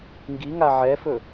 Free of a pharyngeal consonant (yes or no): no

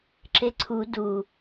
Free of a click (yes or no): no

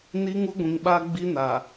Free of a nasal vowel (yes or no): no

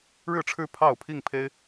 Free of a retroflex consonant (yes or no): no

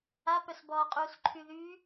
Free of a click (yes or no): no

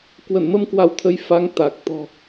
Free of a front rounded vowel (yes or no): yes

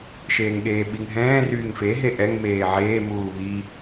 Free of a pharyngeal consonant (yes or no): no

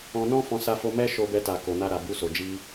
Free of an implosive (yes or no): yes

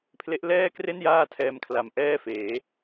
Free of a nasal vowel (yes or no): yes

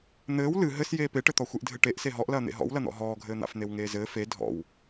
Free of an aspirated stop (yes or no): yes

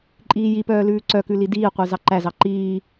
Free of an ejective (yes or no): no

